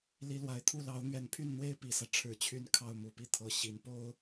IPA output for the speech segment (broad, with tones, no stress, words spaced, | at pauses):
li˧˥lwa˨˩ɪ̯t̪ʰu˥˩ lɑ˧˥ʊ̯n̪ɥɛ˨˩npʰy˥˩nn̪we˥ɪ̯ pi˨˩sä˦ ʈ͡ʂʰɻ̩˨˩t͡ɕʰy˧˥n kʰɑ˥˩ʊ̯mu˨˩pi˥˩ t̪ʰɤ˨˩ɕi˧˥n po˥ʊ̯